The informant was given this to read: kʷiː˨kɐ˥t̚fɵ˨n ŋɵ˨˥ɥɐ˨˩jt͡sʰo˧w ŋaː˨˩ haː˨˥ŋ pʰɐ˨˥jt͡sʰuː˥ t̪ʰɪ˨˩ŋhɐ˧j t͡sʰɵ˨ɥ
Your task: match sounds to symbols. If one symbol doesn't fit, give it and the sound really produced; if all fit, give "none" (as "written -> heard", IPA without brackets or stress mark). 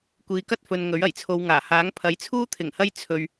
none